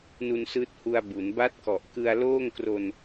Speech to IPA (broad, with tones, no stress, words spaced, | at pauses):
nu˧nsɯː˦˥t̚hu˧a̯ bu˩˦n ba˦˥t̚kɔ˨˩ʔ kɯ˧a̯loː˥˩ŋkro˧n